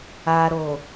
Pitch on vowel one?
low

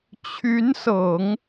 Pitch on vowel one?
rising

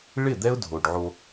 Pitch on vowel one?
falling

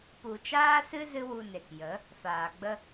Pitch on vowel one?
low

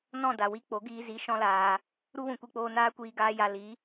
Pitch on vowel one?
falling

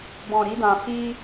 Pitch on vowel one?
low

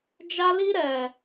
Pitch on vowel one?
high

